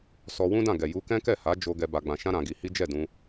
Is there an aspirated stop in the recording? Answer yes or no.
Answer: no